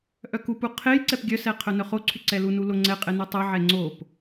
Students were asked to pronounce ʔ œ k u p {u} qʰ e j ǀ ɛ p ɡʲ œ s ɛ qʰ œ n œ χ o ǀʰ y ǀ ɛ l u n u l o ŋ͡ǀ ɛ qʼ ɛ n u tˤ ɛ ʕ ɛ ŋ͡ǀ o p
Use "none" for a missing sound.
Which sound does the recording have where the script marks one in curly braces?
u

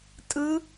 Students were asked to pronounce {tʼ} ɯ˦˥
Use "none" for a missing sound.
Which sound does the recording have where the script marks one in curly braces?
tʼ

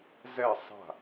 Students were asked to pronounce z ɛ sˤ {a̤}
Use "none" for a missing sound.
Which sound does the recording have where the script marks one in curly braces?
a̤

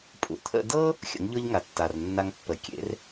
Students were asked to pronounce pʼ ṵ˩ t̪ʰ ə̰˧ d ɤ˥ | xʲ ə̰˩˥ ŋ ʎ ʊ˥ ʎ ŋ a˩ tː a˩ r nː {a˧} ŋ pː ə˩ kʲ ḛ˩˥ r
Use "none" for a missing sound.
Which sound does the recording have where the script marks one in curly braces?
a˧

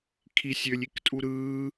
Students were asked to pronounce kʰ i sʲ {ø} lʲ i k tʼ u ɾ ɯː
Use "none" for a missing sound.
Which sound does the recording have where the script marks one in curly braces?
ø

